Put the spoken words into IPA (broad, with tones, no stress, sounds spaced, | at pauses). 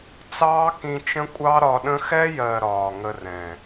t͡s ɑː˦ k ĩ˧ t͡ʃ ə̃˦ kʷʼ ɑ˦ ɾ ɒ˧ ɗ ə̃˦ x ɛ˦ j ɜ˨ ɾ ɒː˨ ŋ ə˧ r ɛ̃˨